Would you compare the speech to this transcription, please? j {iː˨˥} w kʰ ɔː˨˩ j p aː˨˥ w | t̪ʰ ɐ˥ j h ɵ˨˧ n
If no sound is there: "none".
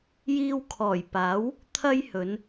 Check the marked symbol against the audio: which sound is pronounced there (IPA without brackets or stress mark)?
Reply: iː˧